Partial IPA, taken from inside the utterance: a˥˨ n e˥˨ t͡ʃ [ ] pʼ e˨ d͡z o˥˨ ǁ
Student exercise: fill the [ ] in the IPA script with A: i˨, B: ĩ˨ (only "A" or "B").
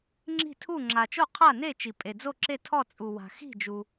A